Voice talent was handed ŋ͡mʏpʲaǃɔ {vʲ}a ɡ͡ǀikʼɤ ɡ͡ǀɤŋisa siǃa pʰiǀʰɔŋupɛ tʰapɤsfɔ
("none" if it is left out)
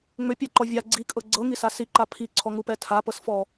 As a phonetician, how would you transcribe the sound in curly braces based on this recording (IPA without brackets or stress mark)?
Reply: vʲ